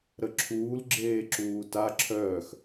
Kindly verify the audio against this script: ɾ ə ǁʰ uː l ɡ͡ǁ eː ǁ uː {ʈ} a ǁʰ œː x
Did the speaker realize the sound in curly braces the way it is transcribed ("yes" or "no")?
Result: no